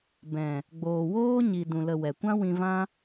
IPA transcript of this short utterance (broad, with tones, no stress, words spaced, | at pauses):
bɛ̃˨ | ɡ͡boː˨woː˦ɲi˨ dũ˨ lə˧wɛ˨ kʷã˦wĩ˧vã˦